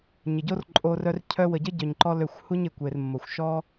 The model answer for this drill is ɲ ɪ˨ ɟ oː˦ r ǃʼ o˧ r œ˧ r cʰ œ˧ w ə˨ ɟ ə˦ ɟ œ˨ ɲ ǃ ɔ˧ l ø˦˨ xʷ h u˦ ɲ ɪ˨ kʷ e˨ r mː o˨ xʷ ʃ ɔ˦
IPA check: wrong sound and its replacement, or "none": oː˦ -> o˦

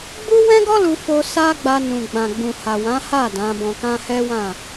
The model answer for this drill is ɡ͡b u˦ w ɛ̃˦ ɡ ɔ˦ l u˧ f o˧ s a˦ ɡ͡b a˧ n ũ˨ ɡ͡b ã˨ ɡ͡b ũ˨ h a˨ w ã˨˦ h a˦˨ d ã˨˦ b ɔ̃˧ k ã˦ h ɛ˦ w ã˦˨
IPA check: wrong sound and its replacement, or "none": none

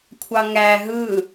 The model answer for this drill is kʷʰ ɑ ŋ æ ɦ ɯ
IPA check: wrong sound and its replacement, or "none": none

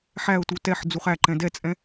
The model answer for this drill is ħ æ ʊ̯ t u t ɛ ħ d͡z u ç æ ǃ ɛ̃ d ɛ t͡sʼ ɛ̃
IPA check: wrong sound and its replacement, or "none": ç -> χ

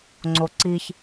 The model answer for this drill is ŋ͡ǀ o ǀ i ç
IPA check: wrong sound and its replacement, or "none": none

